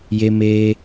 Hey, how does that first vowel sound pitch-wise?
high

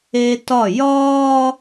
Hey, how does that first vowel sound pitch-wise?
high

